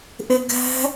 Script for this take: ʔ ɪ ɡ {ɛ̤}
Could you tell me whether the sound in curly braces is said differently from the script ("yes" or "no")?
no